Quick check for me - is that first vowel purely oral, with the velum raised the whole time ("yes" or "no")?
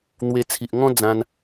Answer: yes